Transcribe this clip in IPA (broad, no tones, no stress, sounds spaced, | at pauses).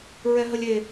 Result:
ɹ ɛ ɦ ə lʲ e